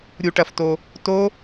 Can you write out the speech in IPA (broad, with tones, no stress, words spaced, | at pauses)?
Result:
ɾʲu˨˩˦ʈɐ˨fto˨ | to˦˥